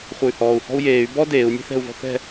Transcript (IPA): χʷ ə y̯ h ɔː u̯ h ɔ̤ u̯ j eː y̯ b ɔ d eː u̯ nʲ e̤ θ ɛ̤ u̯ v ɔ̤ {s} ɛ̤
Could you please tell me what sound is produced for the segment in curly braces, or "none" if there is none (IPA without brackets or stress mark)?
θ